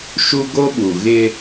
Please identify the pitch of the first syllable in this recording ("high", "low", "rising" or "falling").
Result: high